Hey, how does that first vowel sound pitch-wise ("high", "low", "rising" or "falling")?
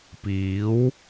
rising